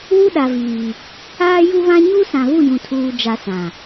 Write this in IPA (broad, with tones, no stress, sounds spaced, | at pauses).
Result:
w u˦ ɗ a˨ v iː˨ | aː˦ j u˦ β ã˦ ɲ u˦ s ã˨ β u˦˨ j ũ˨ tʰ uː˨ d͡ʒ a˨ s ã˨